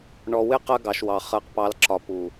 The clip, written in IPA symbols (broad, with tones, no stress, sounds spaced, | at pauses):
ɳ ɔ˨ w ɪ˦ q ɜ˦ ɡ ɑ˨ ʃ w ɑ˨ χ ɜ˨ q p ɑ˨˦ l ǁ ɒ˨ p u˨